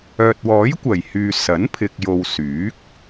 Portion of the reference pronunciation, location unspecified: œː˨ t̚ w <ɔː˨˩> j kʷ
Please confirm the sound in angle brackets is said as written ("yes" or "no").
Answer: no